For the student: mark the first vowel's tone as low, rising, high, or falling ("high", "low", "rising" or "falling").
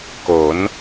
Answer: rising